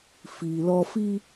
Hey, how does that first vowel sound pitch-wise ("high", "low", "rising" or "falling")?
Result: low